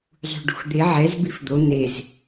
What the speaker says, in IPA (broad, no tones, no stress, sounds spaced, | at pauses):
zˤ ṳ ɖ ṳ x d̪ e ʕ ɛ z b i f d̪ o n̪ e z